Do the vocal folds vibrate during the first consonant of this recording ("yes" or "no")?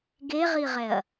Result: yes